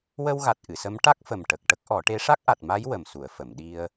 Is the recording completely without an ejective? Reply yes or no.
yes